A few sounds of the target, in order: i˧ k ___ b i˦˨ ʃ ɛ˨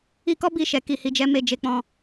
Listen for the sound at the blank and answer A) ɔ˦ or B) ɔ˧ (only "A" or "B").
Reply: A